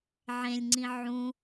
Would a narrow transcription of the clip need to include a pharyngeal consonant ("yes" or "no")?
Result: yes